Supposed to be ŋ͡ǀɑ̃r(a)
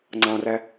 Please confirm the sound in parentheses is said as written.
no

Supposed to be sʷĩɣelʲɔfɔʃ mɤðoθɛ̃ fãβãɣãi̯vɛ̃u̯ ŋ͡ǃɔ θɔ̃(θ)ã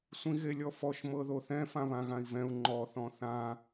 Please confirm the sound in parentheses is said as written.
yes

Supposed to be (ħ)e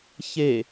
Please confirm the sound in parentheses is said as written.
no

